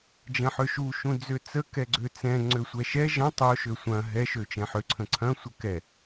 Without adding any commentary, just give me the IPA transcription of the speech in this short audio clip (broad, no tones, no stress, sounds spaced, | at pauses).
d͡ʒ ɐ̃ ħ ø ʃ u ʃ ũ d͡z ø t͡s ə k ɛ ɡ͡ǀ ø t͡s ɛ̃ ŋ͡ǀ ø sʷ ɛ ʃ ɛ ʒ ɐ̃ tˤ o ʃ ø sʷ ɐ̃ ɦ ɛ ʃ ø t͡ʃ ɛ̃ ħ ø ǀʰ ə̃ ǀʰ ɐ̃ sʷ ə k ɛ